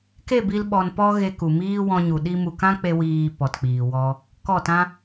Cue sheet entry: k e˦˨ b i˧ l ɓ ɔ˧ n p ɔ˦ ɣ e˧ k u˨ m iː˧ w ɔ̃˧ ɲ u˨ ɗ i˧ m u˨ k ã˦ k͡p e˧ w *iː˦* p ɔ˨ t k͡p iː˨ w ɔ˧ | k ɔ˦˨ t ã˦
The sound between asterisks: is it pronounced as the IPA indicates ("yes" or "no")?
no